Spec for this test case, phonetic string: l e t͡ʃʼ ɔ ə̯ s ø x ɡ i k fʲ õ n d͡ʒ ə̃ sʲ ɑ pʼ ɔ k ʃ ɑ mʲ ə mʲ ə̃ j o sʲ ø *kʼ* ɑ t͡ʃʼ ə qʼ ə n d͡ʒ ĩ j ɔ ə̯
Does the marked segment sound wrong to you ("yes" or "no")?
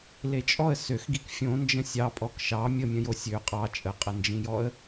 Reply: yes